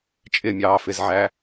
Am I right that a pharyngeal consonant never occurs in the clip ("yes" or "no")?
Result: no